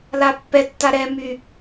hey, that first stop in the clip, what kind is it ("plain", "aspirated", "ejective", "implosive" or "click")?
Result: plain